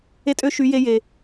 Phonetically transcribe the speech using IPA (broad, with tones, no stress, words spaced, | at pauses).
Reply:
e˧tʼø˧ ʃy˨˦ je˧je˨